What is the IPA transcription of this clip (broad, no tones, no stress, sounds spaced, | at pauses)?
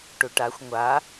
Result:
ʈ u ʈ a xʷ ŋʷ a